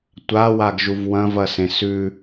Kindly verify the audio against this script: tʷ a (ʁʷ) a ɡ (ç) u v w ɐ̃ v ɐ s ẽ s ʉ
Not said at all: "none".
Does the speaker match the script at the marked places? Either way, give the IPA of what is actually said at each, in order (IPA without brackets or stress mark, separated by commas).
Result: w, ʒ